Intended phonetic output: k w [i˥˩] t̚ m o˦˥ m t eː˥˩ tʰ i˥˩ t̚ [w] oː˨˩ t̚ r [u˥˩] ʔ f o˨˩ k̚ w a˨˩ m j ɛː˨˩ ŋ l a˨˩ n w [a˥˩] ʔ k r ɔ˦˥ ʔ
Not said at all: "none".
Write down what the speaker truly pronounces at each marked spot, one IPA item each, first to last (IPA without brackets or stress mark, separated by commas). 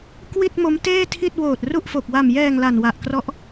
i˥˩, w, u˥˩, a˨˩